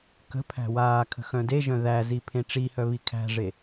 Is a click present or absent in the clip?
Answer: absent